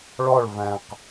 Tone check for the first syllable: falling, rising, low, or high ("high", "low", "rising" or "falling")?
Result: falling